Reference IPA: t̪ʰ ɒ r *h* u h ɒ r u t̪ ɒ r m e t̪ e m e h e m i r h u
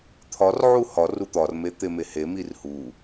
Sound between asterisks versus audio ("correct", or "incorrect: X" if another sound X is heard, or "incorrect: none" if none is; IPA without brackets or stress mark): incorrect: ʕ